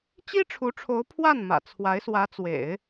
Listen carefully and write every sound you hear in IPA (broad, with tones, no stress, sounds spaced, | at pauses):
t͡ɕ i˥ ʈ͡ʂʰ u˧˥ ʈ͡ʂʰ o˧˥ ʊ̯ pʰ w a˥˩ n m ä̰˨˩ t͡sʰ w a˧˥ ɪ̯ s w ä˧˥ t͡s w ḛ˨˩˦ ɪ̯